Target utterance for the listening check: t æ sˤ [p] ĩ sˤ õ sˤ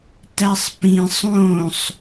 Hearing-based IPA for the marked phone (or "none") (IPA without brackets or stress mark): p